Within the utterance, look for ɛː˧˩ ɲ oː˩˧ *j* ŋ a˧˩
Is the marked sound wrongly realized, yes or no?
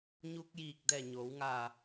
yes